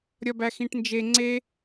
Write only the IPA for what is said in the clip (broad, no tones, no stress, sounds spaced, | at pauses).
ɾʲ ɒ b æ x ĩ ʈ n d͡ʒ e ŋ͡ǀ e